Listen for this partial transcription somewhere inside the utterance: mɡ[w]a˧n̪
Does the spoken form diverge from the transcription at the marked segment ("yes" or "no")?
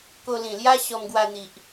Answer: no